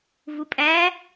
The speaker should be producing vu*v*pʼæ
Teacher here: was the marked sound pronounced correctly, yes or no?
no